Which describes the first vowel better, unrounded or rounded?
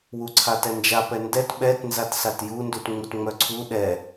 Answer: rounded